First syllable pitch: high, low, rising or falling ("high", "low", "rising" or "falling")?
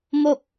falling